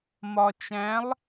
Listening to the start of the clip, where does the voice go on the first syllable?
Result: low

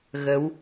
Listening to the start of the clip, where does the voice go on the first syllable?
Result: rising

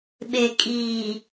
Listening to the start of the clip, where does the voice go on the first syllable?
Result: low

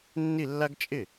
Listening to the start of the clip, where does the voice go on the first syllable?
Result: falling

